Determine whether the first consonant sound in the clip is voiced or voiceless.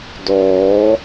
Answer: voiced